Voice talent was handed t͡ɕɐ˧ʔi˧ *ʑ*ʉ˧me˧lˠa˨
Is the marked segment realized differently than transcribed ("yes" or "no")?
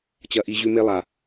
no